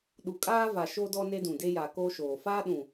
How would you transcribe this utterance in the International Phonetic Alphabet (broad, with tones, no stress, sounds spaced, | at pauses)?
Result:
ɗ u˨ kʼ aː˦ v a˨ ʃ o˦ d ɔ˦ n e˦ d ũ˨ d e˦ j a˨ k oː˦ ʃ oː˨ f aː˦ ɗ ũ˨